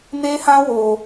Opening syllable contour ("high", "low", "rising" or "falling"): high